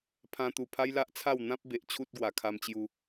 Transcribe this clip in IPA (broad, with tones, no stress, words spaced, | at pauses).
pʰã˧t̪u˨˩ pʰa˦jla˦ʔt͡sʰa˥˧w n̪ã˦p̚be˨ʔ t͡ɕʰu˦t̚ɡwa˨˩kʰa˧m t͡ɕju˧